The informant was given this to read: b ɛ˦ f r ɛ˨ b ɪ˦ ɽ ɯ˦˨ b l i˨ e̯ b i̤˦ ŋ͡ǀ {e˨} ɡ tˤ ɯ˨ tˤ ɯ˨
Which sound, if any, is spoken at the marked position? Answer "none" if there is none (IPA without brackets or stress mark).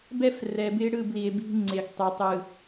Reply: e˨